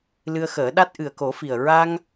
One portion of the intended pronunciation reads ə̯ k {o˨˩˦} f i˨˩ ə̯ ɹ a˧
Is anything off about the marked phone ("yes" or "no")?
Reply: no